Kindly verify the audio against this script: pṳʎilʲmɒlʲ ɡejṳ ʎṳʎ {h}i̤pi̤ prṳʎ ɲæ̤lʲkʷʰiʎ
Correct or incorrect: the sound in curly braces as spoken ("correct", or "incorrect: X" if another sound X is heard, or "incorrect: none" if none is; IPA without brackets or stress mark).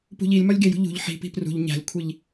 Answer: incorrect: ħ